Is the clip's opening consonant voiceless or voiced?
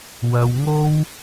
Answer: voiced